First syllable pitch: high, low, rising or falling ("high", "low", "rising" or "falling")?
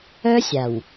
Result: high